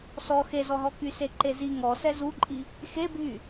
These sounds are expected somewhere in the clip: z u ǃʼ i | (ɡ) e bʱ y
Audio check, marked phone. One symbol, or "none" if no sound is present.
x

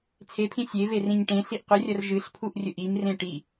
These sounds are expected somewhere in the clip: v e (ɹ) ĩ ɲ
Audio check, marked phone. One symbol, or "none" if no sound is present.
r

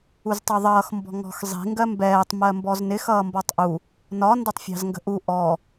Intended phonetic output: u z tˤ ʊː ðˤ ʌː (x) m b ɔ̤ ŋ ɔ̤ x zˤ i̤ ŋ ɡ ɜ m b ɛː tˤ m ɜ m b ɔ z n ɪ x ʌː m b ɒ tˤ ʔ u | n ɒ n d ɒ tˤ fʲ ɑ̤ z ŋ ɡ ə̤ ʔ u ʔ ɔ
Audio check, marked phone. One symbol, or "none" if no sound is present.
x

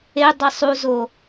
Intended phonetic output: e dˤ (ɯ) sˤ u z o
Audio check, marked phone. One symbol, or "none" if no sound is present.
ɯ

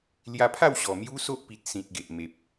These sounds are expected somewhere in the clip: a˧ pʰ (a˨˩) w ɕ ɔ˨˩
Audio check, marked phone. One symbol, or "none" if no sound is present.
a˥˧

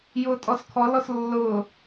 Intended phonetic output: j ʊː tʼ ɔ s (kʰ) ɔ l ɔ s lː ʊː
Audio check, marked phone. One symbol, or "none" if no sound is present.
kʰ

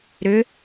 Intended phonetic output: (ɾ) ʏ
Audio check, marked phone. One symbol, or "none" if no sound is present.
ɾ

